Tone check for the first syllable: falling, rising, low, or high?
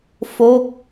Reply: falling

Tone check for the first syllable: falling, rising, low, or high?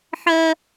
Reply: high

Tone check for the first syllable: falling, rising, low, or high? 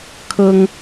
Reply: high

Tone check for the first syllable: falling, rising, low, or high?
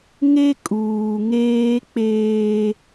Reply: high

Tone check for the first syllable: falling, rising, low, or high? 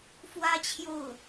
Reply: high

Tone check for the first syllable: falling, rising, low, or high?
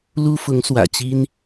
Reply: high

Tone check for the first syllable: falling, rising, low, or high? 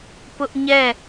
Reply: high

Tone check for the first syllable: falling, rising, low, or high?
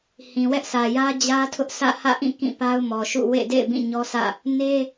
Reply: low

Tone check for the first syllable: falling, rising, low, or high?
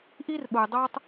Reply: high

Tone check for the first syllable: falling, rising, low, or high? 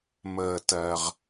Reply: low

